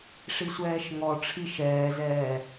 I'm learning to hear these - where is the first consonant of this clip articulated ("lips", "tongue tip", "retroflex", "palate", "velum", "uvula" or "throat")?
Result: retroflex